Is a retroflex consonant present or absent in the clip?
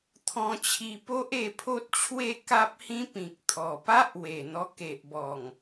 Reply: absent